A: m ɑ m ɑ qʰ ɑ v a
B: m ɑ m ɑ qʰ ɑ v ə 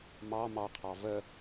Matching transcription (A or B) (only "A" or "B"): B